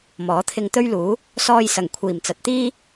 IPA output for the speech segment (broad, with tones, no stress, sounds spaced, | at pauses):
m ɔː˨˥ t̪ʰ ɪ˧ ŋ t̪ ɵ˥ ɥ l uː˨˥ | s ɔː˧ j s ɐ˨˩ ŋ kʷʰ iː˨˩ m t͡s ɐ˨ t̚ t̪ iː˥